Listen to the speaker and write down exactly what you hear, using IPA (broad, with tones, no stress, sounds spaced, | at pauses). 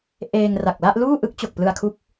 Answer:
ʔ eː˧ ŋ r a˨˩ k̚ l a˥˩ ʔ l uː˥˩ ʔ ɯ˦˥ k̚ t͡ɕ o˨˩ k̚ p l ɯ˧ a̯ kʰ u˦˥ k̚